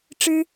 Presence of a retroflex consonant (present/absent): present